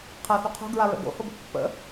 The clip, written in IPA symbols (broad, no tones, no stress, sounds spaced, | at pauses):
qʰ a θ o qʰ o̤ ɡ ɹ a ɹ ə̰ ɡ o̰ h o b ə̤ pː ə̰